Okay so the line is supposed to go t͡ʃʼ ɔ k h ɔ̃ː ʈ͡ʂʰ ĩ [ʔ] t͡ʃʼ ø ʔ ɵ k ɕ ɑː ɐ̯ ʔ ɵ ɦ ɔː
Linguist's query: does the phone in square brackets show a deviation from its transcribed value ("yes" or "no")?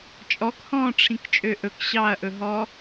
yes